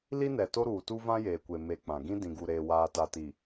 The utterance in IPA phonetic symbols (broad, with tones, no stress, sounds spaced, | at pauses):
l i˦ n ɛ˨ t o˦ ɾ uː˨ t u˦ v ã˦ j eː˨ kʷ e˨ m e˨ k͡p ã˨ ɡ ĩ˦ d ĩ˨ ɡ u˨ ɾ eː˨ w aː˨ t a˨ t i˨